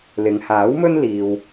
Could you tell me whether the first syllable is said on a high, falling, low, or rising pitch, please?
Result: low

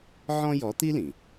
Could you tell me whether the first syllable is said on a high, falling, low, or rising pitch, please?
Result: high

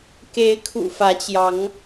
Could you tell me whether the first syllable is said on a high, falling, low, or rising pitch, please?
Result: rising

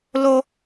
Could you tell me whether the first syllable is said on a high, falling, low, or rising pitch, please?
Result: high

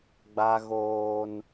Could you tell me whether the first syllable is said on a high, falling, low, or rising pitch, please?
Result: high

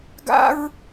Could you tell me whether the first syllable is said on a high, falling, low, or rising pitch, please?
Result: high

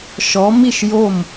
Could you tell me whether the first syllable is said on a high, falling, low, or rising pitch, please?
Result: rising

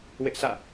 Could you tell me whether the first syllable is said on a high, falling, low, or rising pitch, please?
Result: high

